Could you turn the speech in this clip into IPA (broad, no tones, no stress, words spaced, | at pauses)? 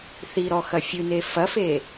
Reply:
θiɾɔ xɐfʲɨne fɐfe